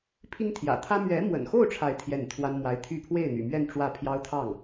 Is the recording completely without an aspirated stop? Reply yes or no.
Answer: no